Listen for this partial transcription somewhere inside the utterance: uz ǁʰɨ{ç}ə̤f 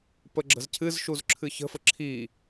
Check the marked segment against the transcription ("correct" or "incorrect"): correct